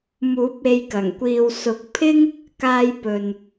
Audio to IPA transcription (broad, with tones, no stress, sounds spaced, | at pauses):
m uː˨˥ p̚ e˧ j k ɐ˨˩ ŋ kʷ iː˨ w s ʊ˨˥ k̚ pʰ ɪ˥ ŋ | k aː˧ j p ɵ˨ n